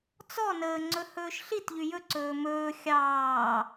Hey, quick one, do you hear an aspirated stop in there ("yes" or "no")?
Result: no